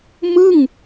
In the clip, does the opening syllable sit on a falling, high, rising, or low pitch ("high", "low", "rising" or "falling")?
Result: falling